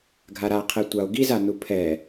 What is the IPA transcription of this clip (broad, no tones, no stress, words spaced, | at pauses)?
ɡʱaɾaqʰɛ tʷao̯ɡiza nupʰɛ